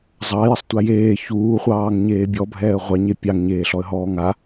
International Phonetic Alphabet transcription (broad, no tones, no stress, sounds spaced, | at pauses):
zˤ ɑ j ə sˤ tʷ a j eː ç uː χʷ ɑː ŋ ɲ eː bʲ ɔ bʱ ɛː ə̯ ʁʷ ɑ ɲ e pʲ ɑ ŋ ɲ eː ɬ ɔ ə̯ ɦ ɔː ŋ a